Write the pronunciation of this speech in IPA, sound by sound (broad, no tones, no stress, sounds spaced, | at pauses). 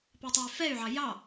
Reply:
p ɛ tˤ ɑ y̯ f ɛ y̯ ʕ ɑ j ɑ